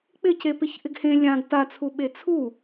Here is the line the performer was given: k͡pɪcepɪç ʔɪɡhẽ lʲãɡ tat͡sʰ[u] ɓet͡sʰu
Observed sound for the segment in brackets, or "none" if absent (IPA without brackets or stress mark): u